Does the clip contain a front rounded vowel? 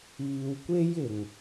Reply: no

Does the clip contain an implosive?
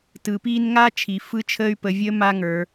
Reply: no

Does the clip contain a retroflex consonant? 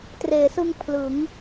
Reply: no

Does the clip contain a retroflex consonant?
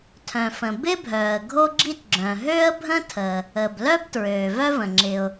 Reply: no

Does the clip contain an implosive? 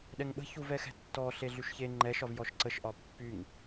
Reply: yes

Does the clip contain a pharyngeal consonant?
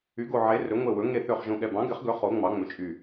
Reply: yes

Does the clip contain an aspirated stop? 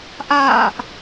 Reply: no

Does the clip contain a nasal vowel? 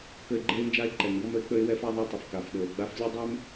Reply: no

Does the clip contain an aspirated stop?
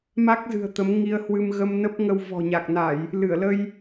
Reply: no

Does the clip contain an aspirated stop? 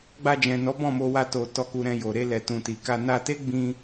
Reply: no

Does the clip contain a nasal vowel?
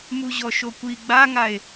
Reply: no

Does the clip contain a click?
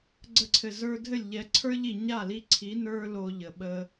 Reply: yes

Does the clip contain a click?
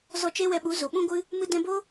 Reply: no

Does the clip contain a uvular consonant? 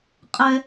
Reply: yes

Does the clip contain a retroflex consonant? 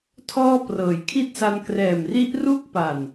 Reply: no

